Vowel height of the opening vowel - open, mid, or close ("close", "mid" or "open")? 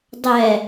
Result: mid